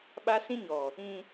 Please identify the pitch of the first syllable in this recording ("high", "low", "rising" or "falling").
high